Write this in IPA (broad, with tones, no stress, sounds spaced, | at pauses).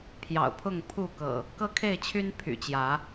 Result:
pʰ j ɑ̰˨˩ ʊ̯ pʰ ʊ˥˨ ŋ pʰ u˥˨ k ɤ̰˨˩ | k ɤ˦ kʰ e˥˨ ɪ̯ t͡ɕʰ y˦ n pʰ y̰˨˩ t͡ɕ j ä˨˦